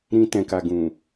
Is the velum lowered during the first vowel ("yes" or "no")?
yes